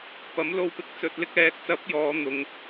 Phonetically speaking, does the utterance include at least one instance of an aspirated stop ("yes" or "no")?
no